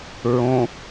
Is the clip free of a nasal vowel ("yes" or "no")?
no